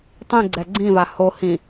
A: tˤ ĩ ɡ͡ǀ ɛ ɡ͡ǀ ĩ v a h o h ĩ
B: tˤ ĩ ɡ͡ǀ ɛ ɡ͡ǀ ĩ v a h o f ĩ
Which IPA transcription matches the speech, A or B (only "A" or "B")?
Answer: A